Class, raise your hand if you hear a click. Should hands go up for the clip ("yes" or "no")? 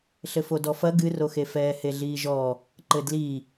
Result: yes